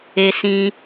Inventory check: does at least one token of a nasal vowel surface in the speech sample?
yes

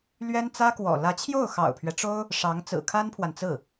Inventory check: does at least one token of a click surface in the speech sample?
no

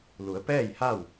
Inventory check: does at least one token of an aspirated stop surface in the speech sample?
no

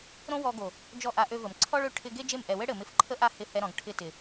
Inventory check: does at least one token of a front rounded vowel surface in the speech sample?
yes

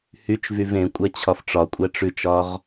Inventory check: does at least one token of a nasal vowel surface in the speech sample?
yes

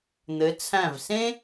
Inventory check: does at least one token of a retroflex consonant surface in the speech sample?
no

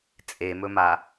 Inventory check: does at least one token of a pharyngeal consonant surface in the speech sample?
no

